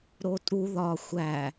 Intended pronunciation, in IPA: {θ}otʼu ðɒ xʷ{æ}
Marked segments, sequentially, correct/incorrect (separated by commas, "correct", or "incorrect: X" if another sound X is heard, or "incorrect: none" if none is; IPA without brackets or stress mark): incorrect: ɾ, correct